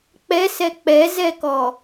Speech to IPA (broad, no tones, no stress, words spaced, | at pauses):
k͡pɛsɛ k͡pɛzɛkɔ